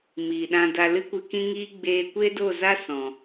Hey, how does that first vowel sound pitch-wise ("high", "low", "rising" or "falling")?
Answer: low